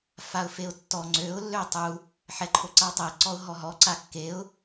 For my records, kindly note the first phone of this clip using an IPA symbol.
f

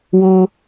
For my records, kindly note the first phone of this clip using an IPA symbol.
w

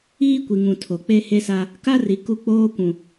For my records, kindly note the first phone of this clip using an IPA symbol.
iː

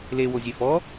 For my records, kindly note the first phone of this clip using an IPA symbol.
l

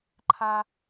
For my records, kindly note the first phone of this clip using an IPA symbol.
ǃʰ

